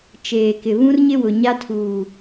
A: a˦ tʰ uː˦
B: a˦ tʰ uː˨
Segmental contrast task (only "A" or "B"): B